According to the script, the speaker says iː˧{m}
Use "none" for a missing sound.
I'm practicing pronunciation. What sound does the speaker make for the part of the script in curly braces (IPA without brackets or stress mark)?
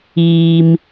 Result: m